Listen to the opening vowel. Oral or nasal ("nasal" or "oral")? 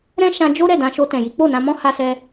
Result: nasal